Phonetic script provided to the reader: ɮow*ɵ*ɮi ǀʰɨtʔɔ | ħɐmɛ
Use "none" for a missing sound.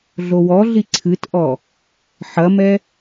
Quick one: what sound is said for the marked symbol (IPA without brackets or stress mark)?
ɔ